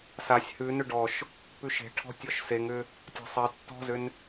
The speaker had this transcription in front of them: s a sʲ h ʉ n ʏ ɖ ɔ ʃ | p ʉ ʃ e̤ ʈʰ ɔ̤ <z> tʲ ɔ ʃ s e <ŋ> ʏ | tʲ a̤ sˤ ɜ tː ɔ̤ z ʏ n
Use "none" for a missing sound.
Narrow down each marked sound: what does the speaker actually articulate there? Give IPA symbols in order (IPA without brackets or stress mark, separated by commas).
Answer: none, ŋ